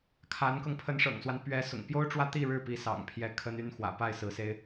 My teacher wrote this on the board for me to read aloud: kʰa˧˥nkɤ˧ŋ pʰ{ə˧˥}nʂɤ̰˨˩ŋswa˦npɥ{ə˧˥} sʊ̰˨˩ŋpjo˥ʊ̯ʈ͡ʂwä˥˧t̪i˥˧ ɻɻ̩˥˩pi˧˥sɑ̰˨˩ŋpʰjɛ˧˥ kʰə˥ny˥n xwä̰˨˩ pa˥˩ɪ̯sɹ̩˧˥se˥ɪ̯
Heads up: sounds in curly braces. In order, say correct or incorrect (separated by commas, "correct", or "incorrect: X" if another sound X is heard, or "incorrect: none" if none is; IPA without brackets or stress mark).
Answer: correct, incorrect: ɛ˧˥